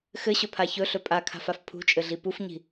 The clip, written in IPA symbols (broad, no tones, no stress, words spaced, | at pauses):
xɘɕɵpʰa çɵɬɵ pʼakʰa̤faf pʰṳt͡ʃʼɘɮi pufɲi̤